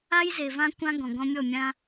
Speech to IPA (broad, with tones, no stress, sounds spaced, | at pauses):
a˦ j z e˨ v ã˦ kʷ ã˦ ɡ ɔ̃˨ ɡ ɔ̃˦ mʲ ɔ˦˨ mʲ ã˦